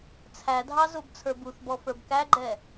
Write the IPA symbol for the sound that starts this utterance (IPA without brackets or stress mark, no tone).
t͡sʰ